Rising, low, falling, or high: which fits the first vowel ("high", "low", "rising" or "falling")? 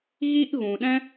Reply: high